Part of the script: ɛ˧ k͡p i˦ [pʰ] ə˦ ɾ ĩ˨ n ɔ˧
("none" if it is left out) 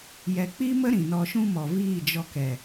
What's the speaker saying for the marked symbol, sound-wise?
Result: m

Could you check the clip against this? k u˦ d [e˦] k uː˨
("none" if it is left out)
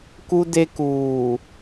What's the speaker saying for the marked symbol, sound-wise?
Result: e˦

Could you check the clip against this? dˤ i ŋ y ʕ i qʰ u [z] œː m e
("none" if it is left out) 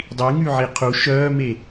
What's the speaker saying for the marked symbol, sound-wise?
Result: ʃ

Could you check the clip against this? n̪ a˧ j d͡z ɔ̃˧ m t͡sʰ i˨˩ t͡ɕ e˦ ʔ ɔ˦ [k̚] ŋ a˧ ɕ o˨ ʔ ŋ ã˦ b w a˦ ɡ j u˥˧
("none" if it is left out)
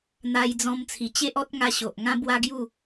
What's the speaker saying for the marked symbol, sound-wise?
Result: t̚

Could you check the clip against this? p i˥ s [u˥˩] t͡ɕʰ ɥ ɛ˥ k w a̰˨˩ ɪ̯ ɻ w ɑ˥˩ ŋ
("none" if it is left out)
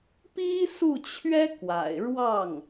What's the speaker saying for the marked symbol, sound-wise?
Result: u˥˩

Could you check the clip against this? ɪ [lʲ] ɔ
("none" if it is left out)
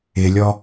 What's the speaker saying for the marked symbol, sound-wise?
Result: lʲ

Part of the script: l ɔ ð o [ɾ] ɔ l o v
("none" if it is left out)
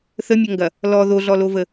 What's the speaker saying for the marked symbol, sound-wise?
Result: ɮ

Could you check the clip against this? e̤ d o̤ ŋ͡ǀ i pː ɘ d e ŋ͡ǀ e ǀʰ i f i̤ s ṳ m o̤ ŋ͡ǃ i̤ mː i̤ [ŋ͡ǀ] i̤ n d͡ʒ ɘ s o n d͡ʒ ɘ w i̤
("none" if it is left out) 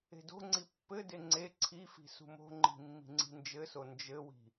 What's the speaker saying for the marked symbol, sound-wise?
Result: ŋ͡ǀ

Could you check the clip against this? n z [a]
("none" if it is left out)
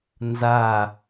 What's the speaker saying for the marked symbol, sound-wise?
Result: a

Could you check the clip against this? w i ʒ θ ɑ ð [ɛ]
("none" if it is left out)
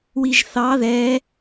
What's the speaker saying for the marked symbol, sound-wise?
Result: ɛ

